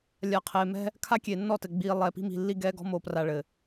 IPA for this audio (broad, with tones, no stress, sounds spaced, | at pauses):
lʲ a˨ qʰ eː˨ m ɛ̤˦ | kʰ a˦ kʲ e˨ nː ɔ˦˨ t ɘ˨ ɡ͡b iː˨ lˠ ɛ˨ p i̤˦ m i̤˨ lː i˦ ɡ ɛː˦ ɡ ɔ̤˦ m o˨ p r a˨ ɭ ɘ˨